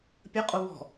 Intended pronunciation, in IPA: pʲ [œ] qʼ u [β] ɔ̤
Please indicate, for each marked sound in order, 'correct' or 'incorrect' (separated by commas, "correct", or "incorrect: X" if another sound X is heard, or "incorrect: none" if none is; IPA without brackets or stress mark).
incorrect: ə, correct